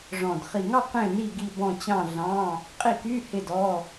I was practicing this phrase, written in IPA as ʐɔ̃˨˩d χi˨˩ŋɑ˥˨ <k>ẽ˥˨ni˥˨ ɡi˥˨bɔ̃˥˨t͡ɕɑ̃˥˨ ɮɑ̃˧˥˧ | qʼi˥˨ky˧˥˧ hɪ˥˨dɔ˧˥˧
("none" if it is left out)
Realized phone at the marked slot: q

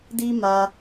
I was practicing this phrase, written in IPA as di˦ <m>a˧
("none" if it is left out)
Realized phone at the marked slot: m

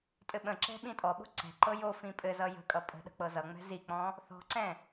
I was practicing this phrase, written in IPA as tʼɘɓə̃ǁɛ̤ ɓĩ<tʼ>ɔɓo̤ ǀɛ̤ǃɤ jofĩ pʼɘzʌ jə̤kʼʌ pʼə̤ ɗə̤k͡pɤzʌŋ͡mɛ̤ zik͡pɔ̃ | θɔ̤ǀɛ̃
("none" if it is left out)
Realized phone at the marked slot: tʼ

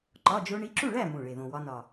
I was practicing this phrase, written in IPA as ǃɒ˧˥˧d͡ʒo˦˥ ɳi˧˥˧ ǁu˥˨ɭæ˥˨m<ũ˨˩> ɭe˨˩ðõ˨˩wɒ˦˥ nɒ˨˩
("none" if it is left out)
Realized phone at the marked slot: ũ˨˩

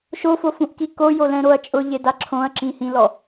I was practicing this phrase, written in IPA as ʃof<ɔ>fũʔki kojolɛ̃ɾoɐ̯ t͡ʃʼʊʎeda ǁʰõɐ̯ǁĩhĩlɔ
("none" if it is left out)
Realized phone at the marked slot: o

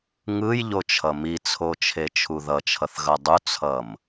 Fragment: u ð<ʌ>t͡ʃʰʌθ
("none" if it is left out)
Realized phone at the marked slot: ʌ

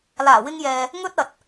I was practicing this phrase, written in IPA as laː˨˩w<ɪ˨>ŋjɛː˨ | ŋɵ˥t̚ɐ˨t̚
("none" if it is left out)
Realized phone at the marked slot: ɪ˧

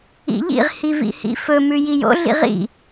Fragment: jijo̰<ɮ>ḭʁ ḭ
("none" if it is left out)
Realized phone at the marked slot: ɮ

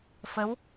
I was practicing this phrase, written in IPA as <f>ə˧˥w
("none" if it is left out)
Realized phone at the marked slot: f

